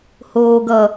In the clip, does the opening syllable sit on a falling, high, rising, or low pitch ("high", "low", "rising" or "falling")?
low